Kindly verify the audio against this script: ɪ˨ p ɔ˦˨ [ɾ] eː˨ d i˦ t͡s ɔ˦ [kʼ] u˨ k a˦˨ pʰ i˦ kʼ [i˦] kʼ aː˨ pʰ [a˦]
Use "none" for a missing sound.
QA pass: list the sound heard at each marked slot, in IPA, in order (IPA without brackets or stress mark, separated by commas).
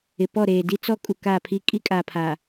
ɾ, kʼ, i˦, a˨